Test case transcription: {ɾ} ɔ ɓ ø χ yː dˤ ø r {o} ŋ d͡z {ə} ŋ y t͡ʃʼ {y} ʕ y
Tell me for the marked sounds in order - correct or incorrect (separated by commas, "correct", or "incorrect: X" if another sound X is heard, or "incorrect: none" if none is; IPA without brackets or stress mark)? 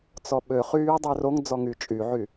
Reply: incorrect: t͡s, correct, incorrect: ɔ, correct